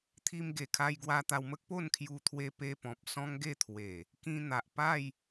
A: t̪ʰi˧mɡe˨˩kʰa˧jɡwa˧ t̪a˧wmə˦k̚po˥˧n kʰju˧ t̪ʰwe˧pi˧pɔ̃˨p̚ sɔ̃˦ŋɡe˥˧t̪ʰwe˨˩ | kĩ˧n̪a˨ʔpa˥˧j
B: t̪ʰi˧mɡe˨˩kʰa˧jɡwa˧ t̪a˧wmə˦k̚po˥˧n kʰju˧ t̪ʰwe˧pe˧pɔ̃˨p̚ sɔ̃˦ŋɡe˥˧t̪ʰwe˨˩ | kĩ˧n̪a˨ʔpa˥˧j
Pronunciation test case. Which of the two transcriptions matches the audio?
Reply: B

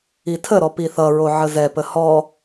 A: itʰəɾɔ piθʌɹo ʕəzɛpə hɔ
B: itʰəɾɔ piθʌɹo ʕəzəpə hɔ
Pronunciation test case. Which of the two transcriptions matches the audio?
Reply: A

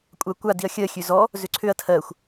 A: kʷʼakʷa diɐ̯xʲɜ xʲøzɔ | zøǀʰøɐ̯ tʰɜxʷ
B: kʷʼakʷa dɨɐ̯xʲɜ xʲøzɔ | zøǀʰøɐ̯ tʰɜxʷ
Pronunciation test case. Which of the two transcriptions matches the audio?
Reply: A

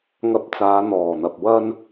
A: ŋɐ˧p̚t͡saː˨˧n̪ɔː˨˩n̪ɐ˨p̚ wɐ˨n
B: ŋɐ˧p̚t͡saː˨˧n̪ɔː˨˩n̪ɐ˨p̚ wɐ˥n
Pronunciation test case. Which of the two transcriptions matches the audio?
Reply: B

